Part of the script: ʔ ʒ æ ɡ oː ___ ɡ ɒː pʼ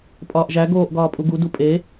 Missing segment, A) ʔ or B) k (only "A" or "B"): A